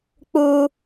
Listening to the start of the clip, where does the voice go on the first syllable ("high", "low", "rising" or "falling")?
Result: high